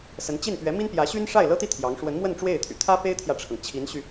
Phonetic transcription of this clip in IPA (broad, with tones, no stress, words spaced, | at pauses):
sə˧˥nt͡ɕi˥˩npɥɛ˧˥ mi˥npjä˧˥ ɕy˥nʂa˥˩ɪ̯lɤ˥t̪i˥˩ t̪ʰjɑ˧˥ŋ ʂwə˧˥nmwə˥˧n ʈ͡ʂwe˥˩ɪ̯t̪ʰy̰˨˩ t̪ʰä˥pe˥ɪ̯t̪ʰjä˨ʈ͡ʂʰɤ˩ŋ t͡ɕʰi˧˥nɕy˧